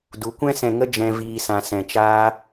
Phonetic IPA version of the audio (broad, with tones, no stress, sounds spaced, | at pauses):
d u˨˦ kʷ ɛ̃˦ s ɛ̃˧ ŋ ə˦ d͡ʒ ɛ̃˦ v iː˦ s ã˦ s ɛ̃˧ t͡ʃ aː˦